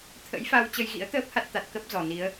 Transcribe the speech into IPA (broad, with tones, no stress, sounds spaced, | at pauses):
t̪ʰ ə̰˧˥ j f a˧ w t͡ɕ ə˧ j ɣ ḭ˧˥ ə̯ t̪ əː˦˥ p̚ h a˦˥ t̚ t̪ a˨˩ t̚ k ə˦˥ p̚ z ɔ˨˩ n i˨˦ ə̯